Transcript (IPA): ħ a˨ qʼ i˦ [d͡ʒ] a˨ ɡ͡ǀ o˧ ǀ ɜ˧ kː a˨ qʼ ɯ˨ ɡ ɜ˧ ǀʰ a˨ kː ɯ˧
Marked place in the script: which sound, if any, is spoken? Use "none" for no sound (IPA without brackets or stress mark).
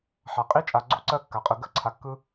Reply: t͡ʃʼ